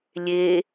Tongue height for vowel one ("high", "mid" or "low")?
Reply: mid